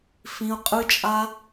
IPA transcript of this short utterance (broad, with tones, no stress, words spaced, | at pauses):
fĩ˧ʊ̯ qʼɯ˧t͡ʃʼa˧